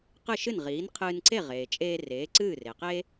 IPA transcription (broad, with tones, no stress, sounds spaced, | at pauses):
q ɨ˥˩ ʃ ɨ˥˩ n ʁ iː˩˥ n qʰ ɨː˧ n ǀ e˥˩ ʁ eː˩ t͡ʃʼ eː˧ r eː˩˥ ǀ ɨː˥˩ r e˩ q e˥